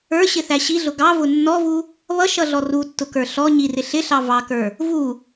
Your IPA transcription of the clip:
ə˞ ɕ ɪ θ æ ɕ i ɮ ʊ ɡ ɑ v ʊ nː ɔ v u | β ʌ ʃ ʌ ɮ ɔ r u tː ʊ k ə˞ ɬ ɔ ɲ i r ɪ ɬ ɪ ɬ ɑ v ɑ k ə˞ | v u

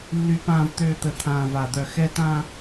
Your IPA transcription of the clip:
lː y˨ p ãː˨ v t̪ øː˨ t̪ ə˨ t̪ʰ ãː˨ v a˨ d̪ œ˨ x ɛ˦ t ãː˦

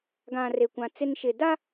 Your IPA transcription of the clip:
ɡ ã˨ r e˨ kʷ ã˨ t͡s ɪ˦ n ʃ ɪ˨ d a˦

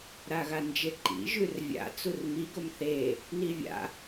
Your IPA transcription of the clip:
ɾ a ɣ a n d͡ʒ e ǃ ḭ ʒ ʉ r vʲ a̰ t͡s u r m i ɡ o m θ e | n i vʲ a̰

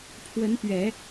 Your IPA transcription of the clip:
pʰ w ə˧˥ n p ɥ ɛ˨˩˦

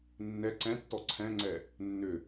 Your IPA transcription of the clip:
nː ɛ ǀ ɛ̃ tː ɔ ǀʰ ɛ̃ ŋ͡ǀ ɛ | nː ʏ

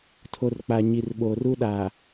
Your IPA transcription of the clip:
tʰ o˨ r k͡p a˨ ɲ i˨ r ɓ oː˨ r u˦ ɗ aː˨

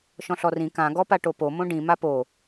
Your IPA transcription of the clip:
ʃ ɔ̃ ɬ ɔ r ĩ k ã ɡ ɔ p a ʈ o p o m õ ɖ ĩ m a p o

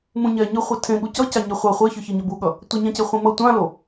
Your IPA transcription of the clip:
m ũ ɲ ɛ ɲ ɯ χʷ i tʰ ẽ ɠ u c ʌ c a ɲ e χʷ a χʷ e ç ɯ ç i ɲ ʌ b u ɠ ʌ | tʷ ʌ ɲ ã c e χʷ ĩ m ʌ tʷ ã l o

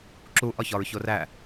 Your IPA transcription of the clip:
ǁ u ʔ ɒ ç ɒ ɹ ç o r æ

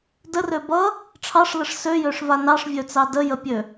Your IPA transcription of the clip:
d ə r ø b ʌ | ʈ͡ʂʰ ɑ ʂ l ə ʂ s ø j ø ʂ v a n ɑ ʂ vʲ ø t͡s ɑ d ə j ə pʲ ø

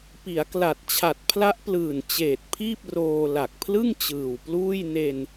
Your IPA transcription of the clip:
p i˩˦ a̯ k l a˨˩ t̚ t͡ɕʰ a˨˩ t̚ pʰ l a˦˥ ʔ p l ɯː˨˩ n t͡ɕ eː˨˩ t̚ pʰ iː˥˩ p̚ r oː˧ l a˨˩ k̚ pʰ l ɯ˥˩ ŋ t͡ɕ ɯː˨˩ w p l uː˥˩ j n e˧ n

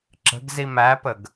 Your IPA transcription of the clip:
ǁ ə̤ ɡ z i m æ p ə ɡ

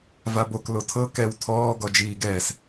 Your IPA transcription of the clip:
v a b o k l o tʰ ɤ k ɛ w tʰ ɔː ɡ ɔ d͡ʒ iː ɡ ɛː s

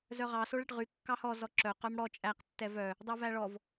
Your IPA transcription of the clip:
z œ ʁ ɑ s o ɭ ɛ ʈ ʁ y kː ɑ h ɔ z ɔ ǁ œ q œ m ɽ ɔ t͡ʃʼ æ q tː ɛ v œ | dˤ ɛ v æ ɭ ɔ v

